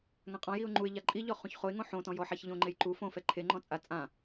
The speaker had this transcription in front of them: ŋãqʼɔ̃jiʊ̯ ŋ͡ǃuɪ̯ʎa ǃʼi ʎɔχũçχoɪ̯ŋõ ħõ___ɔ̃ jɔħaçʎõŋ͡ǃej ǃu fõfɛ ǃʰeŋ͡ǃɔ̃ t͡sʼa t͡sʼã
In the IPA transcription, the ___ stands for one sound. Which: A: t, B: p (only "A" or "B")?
A